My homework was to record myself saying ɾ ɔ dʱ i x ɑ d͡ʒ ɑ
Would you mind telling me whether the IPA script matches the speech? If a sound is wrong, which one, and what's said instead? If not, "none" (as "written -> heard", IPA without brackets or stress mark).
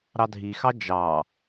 ɔ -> ɑ